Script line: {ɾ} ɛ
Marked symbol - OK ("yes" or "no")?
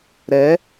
yes